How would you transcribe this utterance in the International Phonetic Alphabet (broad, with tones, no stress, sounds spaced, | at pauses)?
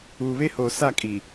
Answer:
uː˨ β e˦ h oː˨ s a˦˨ kʼ i˨